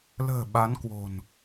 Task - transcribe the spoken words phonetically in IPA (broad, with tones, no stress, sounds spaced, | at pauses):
l ə̤ː˨˩ ɓ a˨˦ n k w o̤˨˩ n